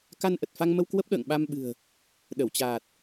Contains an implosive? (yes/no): yes